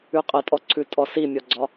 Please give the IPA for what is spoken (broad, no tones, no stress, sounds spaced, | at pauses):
ʉ qʼ ə tʼ ɔ ǀʰ ʉ tʼ ɔ s i mʲ ɔ ɡ͡ǀ ɒ